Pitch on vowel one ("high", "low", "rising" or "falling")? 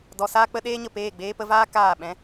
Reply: low